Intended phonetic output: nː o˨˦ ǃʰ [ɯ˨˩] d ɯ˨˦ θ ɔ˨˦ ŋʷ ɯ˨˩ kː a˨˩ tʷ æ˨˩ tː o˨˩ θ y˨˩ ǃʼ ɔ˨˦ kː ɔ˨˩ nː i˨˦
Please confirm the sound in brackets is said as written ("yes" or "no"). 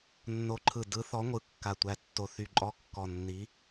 yes